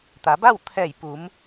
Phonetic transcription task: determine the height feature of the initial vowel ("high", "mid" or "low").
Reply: low